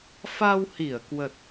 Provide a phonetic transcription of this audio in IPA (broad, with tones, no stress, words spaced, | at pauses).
fa˧whi˧˩ə̯kwə˨˩t̚